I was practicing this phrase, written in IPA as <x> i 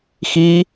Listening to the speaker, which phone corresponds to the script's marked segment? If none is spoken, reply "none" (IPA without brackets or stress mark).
x